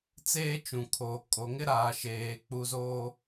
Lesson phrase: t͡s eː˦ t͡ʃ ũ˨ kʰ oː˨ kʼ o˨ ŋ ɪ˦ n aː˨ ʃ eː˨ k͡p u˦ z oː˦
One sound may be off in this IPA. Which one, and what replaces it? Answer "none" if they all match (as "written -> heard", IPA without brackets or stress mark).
n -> ɾ